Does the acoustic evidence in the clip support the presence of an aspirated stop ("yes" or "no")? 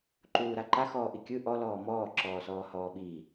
no